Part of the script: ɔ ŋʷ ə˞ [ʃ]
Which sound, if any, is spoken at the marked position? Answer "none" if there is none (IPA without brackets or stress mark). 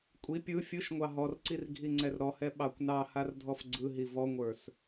s